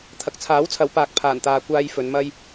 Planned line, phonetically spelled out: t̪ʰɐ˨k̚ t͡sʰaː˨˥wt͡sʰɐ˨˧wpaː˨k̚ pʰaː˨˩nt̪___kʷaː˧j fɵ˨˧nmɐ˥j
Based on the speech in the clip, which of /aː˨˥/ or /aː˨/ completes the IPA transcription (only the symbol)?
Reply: aː˨